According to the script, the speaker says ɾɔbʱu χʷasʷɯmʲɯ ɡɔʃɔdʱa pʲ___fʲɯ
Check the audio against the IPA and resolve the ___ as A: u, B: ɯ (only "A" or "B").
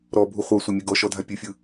B